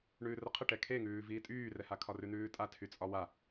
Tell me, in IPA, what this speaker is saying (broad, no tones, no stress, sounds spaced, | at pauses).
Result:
ɳ ʉː r ə qʰ ə ʈ ɛ kʰ e ŋ ʉː v iː tʼ yː r ɛ h a kʰ ɒ r ʉ n̪ ʉː tʼ a tʰ y t͡sʼ ɒ w a